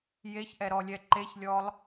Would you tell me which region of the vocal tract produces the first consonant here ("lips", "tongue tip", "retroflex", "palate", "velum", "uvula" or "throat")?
palate